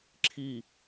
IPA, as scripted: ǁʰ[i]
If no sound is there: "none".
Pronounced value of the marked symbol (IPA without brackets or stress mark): i